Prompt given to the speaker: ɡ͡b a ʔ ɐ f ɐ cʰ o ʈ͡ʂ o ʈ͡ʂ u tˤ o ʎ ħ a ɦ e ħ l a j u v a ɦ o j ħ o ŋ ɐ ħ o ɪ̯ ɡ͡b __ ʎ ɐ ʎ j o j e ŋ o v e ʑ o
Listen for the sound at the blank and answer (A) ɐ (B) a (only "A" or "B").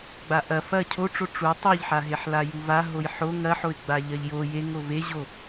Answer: B